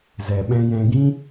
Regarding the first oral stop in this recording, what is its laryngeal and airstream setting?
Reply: implosive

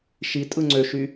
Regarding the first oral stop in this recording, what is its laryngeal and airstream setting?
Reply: ejective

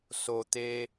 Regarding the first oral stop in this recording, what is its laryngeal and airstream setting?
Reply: plain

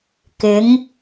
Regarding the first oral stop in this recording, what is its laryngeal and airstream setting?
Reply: plain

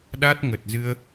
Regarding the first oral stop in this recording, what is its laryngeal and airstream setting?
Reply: implosive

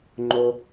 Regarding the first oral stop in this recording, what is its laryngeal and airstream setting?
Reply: click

